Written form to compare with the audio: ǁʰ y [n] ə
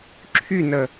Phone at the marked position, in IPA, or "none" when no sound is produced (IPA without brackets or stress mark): n